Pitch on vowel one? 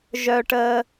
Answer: high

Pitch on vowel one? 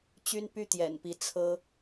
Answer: high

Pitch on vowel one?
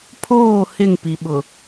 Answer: falling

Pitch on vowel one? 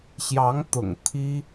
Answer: rising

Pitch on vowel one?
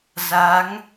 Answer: rising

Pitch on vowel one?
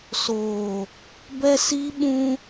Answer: low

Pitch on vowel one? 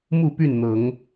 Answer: falling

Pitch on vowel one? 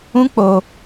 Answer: high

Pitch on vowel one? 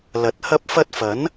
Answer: low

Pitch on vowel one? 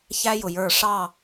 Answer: high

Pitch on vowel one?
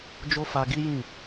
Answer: high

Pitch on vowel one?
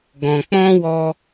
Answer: low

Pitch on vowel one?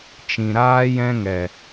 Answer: low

